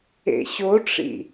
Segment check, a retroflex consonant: present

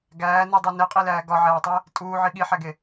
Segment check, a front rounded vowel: absent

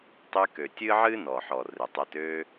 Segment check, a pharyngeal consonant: present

